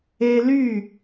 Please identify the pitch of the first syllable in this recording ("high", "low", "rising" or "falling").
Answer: high